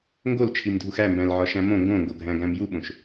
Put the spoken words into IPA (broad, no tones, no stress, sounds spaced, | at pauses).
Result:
ŋ ɡ o l t͡ʃʰ i m dʱ u x æ m b æ̃ l ʕ ɒ ʃ æ̃ m õ ŋ ɡ õ ŋ ɡ o ɡʱ æ̃ ɡ æ̃ m j u ɓ õ ʃ